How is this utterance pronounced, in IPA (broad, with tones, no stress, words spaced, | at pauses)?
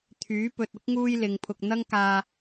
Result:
t̪ʰyː˨˥ pɵ˨t̚ʊ˥k̚ ŋuː˥jlɪ˨˧ŋpʰʊ˧k̚ n̪ɐ˥ŋkaː˧